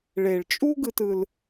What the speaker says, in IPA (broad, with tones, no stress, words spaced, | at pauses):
ɭe˨ɭt͡ʃʼu˦ɡɯ˧t ɯ˧l